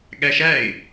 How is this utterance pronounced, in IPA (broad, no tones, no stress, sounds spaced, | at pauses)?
ɠ æ ʃ æ ɪ̯